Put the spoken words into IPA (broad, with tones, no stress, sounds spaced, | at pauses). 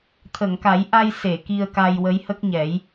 t̪ʰ ə˨˩˨ ŋ k a˨˩˦ j ʔ a˧ j s e˨˩˨ k i˧ ə̯ k a˧ j w ə˧˥ j h ə˦˥ k̚ ɲ ɛ˨˩˦ j